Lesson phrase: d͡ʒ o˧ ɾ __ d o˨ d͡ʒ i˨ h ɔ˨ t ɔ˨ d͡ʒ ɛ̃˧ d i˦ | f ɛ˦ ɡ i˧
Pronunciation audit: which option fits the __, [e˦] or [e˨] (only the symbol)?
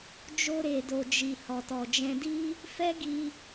e˨